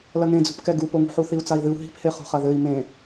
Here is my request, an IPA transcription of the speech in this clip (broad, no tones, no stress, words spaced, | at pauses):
lɐŋẽd͡zṳpkɛ ɡupoŋṳħu θiu̯t͡sai̯ðɨu̯ ɦi̤phe χṳχɐðɘi̯ mẽ